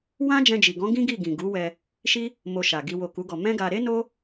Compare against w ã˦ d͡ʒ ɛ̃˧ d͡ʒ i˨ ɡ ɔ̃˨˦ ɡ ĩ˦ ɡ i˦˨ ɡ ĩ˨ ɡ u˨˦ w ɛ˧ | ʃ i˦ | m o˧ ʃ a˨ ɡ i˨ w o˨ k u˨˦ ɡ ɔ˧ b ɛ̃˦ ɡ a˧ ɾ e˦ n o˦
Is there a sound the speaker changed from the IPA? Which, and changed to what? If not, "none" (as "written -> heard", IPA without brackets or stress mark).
b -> m